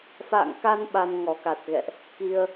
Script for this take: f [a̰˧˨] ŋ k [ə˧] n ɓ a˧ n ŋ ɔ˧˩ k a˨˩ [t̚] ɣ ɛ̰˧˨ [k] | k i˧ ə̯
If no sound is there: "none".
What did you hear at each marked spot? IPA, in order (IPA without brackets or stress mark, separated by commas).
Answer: a̰˧˨, a˧, t̚, ʔ